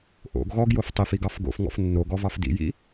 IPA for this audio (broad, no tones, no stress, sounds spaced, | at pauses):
ʔ o̰ ɡ ɣ ɔ ɡ j o f tˤ i f i ɡ ɑ f ɡ o̰ f ŋ ɔ̰ f nː o ɡ ɔ v ɑ f d ḭ j ḭ